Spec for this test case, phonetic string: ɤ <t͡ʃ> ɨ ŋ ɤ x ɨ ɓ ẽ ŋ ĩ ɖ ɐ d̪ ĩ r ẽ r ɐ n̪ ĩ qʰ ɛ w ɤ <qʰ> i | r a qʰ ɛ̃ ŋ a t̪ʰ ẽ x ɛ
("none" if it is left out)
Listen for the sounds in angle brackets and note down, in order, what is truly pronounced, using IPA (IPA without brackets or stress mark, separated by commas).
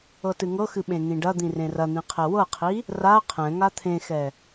t, qʰ